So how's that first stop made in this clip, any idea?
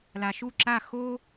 click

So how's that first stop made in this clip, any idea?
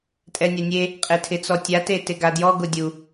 ejective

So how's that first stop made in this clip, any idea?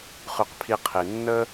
plain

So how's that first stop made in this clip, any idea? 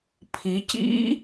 aspirated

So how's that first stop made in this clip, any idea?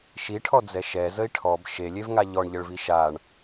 aspirated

